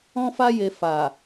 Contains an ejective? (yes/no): no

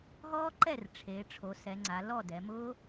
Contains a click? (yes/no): yes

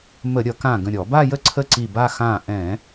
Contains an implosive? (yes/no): no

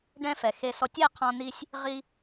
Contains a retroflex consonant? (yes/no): yes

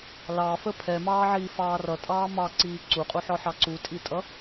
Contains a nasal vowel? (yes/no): no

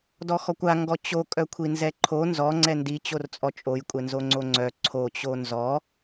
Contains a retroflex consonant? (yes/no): no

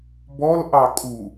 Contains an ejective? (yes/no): yes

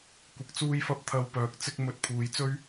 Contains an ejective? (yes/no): no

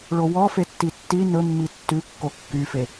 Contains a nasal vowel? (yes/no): no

